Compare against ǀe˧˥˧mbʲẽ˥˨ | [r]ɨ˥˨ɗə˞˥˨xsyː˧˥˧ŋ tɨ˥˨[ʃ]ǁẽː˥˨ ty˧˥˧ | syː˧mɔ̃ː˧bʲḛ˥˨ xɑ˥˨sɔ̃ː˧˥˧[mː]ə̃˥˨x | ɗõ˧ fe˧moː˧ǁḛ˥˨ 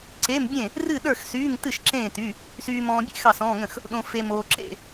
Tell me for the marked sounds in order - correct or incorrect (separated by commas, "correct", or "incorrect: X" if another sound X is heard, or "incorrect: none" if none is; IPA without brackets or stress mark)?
correct, correct, incorrect: ŋ